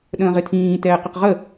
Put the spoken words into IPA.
ɗə̃ːʁɪtʰĩː tɛːqɪqʁə

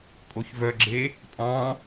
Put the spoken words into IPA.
kʼoçvœɡ͡ǁe | pʼɑ̃

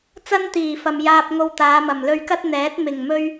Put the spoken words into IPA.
t͡sɐ˥nt̪iː˨˩fɐ˨m jaː˧p̚ŋo˧wt̪aː˨˧ mɐ˨˩mlɵ˧ɥkɐ˥t̚ n̪ɛː˨˥t̚mɪ˨˩ŋ mɵ˥ɥ

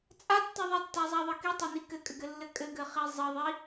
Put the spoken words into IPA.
t͡sʼatːɘ ðˤitːazˤaðˤə kitˤani kɘkʼɘɡɘlːɘ kʼɘɡɘχi zˤɘðˤi

